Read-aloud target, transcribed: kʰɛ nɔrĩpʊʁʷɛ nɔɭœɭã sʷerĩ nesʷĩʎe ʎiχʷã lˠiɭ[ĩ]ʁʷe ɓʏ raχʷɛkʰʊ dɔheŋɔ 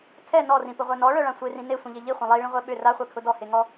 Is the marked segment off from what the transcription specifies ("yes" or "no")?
no